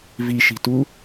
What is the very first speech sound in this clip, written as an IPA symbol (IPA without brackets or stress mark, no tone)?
v